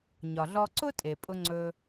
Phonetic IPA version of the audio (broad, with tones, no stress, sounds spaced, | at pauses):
ɲ ɒ˩ ɮ ɔ˧ ǀ ʊ˥ tʼ e˩ pʼ ʊ˧ ŋ͡ǀ ɵ˧